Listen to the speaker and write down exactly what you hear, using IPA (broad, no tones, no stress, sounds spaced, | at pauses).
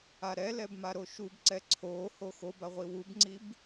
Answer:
a ɾ ɛ l ɛ b m a ɾ o ʃ u b ǀ ɛ ǀʰ o h o x o b a ʁʷ i w u b ŋ͡ǀ i b